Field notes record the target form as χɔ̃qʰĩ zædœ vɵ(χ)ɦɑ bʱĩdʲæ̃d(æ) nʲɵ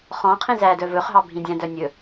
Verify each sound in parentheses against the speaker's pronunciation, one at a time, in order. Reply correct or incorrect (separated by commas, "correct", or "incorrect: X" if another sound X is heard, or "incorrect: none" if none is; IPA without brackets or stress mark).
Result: correct, incorrect: œ